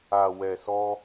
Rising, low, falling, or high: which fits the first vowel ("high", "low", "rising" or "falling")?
low